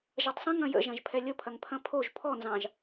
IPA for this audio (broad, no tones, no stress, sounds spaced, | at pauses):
ʒ ɐ tˤ sˤ ə̃ ŋ ɐ̃ j ə̰ ʒ ɐ̃ ʒ pʰ ɛ lʲ ə pʰ ɐ ŋ pʰ ɐ̃ pʰ o ʒ pʰ ɔ n z ɑ̃ ʒ